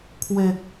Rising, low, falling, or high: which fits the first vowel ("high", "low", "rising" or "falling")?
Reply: low